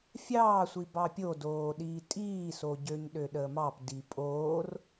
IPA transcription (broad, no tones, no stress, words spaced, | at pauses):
fʲɑːsʷi bɑpʲodoːɗiː tʼiːso ɟøɲɗøɗəːmɑp dipʼoːr